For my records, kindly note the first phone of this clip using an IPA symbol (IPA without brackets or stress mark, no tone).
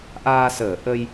ʔ